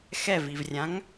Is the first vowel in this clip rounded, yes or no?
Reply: no